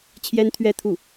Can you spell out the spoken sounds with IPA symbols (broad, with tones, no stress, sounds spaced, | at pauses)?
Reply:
t͡ɕʰ j ɛ˥ n t̪ʰ ɥ ɛ˥˧ t̪ʰ u˥˩